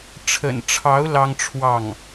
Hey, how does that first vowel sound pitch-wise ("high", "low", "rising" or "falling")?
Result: low